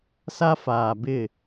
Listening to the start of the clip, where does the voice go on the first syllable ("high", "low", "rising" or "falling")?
high